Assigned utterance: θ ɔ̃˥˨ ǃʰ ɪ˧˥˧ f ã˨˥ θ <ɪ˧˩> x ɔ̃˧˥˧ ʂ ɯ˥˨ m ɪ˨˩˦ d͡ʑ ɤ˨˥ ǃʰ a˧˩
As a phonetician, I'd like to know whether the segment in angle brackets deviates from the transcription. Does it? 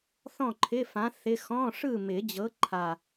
yes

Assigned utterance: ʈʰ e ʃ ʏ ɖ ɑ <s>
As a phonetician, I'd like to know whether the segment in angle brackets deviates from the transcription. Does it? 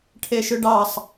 yes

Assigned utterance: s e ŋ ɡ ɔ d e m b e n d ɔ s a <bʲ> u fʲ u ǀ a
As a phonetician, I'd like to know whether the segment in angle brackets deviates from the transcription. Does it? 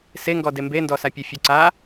yes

